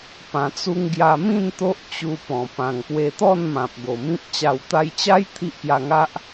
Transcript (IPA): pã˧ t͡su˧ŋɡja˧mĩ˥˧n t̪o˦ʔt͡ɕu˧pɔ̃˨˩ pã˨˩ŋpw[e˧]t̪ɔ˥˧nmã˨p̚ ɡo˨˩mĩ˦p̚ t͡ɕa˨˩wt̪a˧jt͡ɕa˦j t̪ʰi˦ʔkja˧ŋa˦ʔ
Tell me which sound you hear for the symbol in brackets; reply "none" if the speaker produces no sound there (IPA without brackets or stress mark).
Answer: e˧